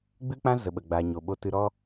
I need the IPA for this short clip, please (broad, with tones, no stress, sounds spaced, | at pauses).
ɡ͡b ɨ˦ k͡p ã˦ z ə˨ ɓ ə˨ ɡ͡b a˨ ɲ o˨ ɓ o˧ t ɨ˧ ɾ ɔ˦